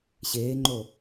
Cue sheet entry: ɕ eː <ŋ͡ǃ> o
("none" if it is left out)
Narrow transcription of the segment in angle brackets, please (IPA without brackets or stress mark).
ŋ͡ǃ